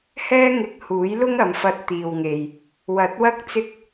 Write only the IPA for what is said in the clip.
hɛː˥ŋɪ˧k̚huː˨˥jlʊ˥ŋ ɐ˨˧mfɐ˧t̚t̪iː˨wŋe˨j | wɐ˨˥t̚wɐ˥k̚ t͡sɪ˥k̚

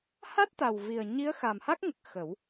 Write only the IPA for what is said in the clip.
ha˦˥t̚t̪a˨˩wvi˨˩ə̯ ɲi˧˥ə̯xa˨˩mha˦˥k̚ŋə˨˩k̚ xə˨˩˦w

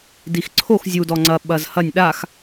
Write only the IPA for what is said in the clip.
dixǀʰox zʲudɔ ŋ͡ǀɐ ɓɐzhɐnʲ ɗax

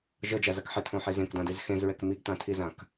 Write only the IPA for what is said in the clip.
ʒɤd͡ʒazak ħɪtʰõħi zẽkdãdez xẽzɹɛk miɡtãtʰizãk

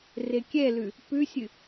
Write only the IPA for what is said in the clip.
rekʲɛlʉ | pʉsʲɨ

